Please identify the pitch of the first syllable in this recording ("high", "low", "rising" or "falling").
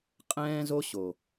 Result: high